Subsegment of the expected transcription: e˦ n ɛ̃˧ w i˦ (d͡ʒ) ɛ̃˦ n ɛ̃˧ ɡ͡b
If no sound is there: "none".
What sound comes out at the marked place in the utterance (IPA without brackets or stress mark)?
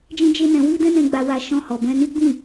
d